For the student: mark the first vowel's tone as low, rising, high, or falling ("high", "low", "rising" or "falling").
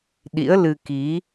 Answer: rising